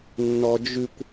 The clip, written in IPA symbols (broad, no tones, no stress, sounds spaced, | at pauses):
nː ɔ d͡ʒ ʉ kʷ